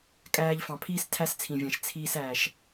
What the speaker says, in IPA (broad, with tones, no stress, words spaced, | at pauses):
kʼæː˧ʎfɑ̃˨pʰiː˦s tʰæ˦st͡sʰĩ˨vʲæ̃˨ʃ t͡sʰiː˧sæː˨ʃ